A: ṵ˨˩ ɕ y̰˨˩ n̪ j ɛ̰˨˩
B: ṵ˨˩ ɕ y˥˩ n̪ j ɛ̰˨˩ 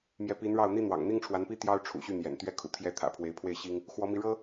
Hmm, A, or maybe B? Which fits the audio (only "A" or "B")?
B